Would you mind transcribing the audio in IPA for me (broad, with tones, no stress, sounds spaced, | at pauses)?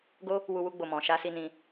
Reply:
ɡ o˦ | w u˧ w u˧ ɡ͡b o˨ m ɔ̃˨ ʃ a˧ s i˧ n ĩ˧